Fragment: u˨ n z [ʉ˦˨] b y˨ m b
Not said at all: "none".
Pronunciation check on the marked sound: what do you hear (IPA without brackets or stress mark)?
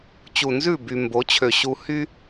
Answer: ʉ˦˨